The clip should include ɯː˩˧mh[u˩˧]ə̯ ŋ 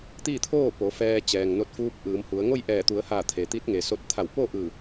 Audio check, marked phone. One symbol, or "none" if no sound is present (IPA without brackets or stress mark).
u˩˧